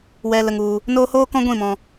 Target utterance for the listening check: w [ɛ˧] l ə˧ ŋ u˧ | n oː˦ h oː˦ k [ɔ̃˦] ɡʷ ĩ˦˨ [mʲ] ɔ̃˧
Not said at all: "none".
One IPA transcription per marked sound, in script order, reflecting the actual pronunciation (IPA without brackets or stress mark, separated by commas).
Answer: ɛ˧, ɔ̃˦, m